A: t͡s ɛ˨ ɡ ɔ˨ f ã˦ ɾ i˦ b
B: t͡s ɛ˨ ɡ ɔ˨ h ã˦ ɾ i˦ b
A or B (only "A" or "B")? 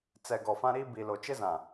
A